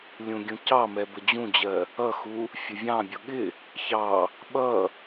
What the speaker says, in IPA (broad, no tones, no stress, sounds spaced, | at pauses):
lʲ ũ ɡʲ ũ c ɑ m ɛ b ə d͡ʑ ũ d͡ʑ ɜ | ʌ x u | fʲ ʊ vʲ ɑ̃ bʲ ʊ ɠ ɪ | ç ɑ | ɓ ʌ